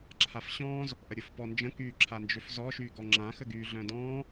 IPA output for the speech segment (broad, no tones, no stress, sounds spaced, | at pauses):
ǁʰ a f ɕ ɔ̃ː z | ʔ ə ɾʲ ʊ f p ɔ n d͡ʒ ə̃ k yː ǁʰ a n d͡ʒ ø f z ɔ ʃ yː ɡ ɔ ŋ͡ǁ ã x ə ɡ yː ɮ œ̃ d ɔ̃ː